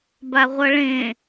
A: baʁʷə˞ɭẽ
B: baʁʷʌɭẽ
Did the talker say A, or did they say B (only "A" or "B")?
B